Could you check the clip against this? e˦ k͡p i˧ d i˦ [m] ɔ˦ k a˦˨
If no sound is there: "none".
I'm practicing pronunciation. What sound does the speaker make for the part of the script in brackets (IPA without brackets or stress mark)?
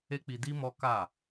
m